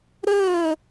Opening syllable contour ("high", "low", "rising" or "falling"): falling